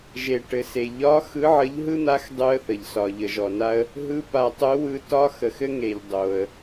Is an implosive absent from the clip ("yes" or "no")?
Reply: yes